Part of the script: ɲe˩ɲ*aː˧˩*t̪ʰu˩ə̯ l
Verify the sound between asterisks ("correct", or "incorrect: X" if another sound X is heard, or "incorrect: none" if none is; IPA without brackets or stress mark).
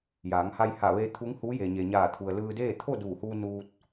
correct